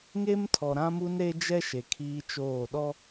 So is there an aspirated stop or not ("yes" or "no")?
yes